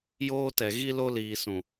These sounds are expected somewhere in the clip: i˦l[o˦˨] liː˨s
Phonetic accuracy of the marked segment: incorrect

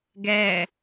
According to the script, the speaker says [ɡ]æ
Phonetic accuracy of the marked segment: correct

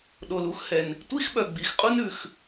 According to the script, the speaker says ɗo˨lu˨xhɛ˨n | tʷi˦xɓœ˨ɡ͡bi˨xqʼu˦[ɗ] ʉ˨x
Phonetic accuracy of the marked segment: incorrect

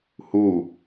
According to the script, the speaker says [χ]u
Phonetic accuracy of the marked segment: incorrect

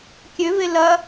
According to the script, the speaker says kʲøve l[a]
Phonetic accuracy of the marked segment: incorrect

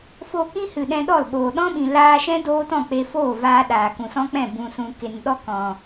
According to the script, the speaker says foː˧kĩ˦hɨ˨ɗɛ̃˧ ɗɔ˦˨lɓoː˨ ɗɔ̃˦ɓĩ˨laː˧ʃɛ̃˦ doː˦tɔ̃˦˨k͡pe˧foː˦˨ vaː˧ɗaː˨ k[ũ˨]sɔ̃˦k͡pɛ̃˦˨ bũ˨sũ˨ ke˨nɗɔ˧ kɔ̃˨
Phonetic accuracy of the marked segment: correct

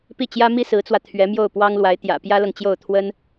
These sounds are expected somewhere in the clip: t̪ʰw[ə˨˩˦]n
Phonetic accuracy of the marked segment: incorrect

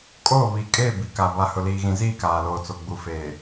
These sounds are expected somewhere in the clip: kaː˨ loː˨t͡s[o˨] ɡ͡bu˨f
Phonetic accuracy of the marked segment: correct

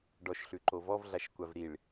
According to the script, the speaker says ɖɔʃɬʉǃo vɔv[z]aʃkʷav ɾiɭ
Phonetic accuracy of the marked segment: incorrect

